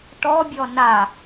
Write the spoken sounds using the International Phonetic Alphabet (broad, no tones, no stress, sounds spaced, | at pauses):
ʈ ɔ bʲ ɔ n a